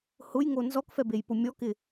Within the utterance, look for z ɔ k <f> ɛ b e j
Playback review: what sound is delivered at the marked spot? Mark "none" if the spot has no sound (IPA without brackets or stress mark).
f